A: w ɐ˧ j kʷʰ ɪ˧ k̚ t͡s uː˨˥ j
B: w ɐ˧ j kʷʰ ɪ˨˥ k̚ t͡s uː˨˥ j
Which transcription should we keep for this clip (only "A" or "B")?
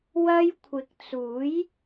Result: B